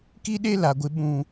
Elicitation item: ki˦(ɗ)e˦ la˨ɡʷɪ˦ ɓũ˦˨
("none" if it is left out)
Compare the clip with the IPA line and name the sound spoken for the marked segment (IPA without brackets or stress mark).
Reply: ɗ